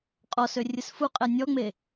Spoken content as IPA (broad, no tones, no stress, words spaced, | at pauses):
qʼɔsø rʲɨsfuqʼɛ nʲɔŋ͡me